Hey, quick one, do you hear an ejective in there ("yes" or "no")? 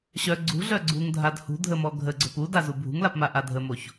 no